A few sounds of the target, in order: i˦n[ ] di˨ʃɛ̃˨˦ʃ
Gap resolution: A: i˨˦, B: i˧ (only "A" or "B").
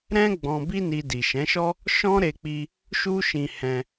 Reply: B